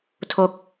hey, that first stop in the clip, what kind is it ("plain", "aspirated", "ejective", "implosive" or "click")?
aspirated